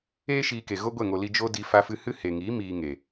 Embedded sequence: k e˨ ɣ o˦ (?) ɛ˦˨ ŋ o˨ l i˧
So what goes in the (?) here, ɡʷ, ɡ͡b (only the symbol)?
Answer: ɡʷ